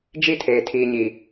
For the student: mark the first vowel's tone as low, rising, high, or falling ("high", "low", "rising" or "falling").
high